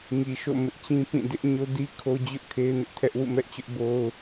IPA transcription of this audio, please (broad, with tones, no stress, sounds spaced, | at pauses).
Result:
ŋ i˨ ʃ o̰˦˨ m ɪ˦ ʔ t͡ɕ ĩ˦ p ĩ˦˨ d ɪ˦ ʔ ɲ o˦ d i˦ kʰ o˦ d͡ʑ ʊ˦ ʔ kʰ e˦ ɪ̯ n ɪ˦ ʔ tʰ ɛ˦ ʔ w ṵ˦˨ m ɛ˦ ʔ t͡ɕ ʊ˦ ʔ b o˦ ʊ̯